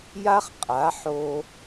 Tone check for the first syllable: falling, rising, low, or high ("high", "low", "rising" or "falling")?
high